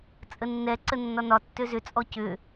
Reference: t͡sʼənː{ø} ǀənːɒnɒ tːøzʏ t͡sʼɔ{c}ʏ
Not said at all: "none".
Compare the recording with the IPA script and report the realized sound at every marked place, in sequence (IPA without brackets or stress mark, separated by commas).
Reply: ɛ, c